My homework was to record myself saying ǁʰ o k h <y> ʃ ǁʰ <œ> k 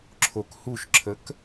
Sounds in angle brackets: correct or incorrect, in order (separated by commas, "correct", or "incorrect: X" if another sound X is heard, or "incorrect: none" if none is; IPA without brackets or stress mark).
incorrect: u, incorrect: ə